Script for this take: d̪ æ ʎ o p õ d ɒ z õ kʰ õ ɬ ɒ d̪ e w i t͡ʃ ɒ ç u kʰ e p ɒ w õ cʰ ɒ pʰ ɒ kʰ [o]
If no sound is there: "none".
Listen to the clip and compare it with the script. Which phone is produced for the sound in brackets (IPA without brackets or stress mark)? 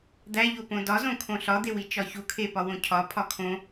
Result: õ